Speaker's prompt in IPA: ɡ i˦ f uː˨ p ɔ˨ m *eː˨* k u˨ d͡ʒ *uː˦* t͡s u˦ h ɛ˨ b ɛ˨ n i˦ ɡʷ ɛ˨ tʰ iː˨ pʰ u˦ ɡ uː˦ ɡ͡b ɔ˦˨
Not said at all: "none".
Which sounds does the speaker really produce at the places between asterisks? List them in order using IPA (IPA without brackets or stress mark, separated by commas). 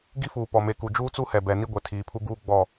e˨, uː˦